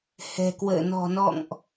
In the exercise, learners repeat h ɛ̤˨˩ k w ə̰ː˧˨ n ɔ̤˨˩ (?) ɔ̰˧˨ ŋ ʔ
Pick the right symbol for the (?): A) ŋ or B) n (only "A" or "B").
B